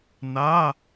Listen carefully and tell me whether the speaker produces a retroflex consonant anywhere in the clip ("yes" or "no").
no